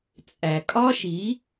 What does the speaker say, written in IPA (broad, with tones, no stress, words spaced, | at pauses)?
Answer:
t͡sʼæ˨ kʼɒ˦ʃi˨˦